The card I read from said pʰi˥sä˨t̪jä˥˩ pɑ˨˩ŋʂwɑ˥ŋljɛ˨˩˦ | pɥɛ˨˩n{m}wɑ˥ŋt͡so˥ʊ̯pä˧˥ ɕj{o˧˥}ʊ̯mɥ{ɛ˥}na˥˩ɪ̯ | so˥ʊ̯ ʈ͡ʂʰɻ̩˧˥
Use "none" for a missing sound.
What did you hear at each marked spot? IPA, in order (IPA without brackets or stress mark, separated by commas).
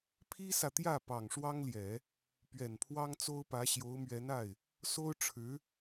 pʰ, o˧˥, ɛ˧˥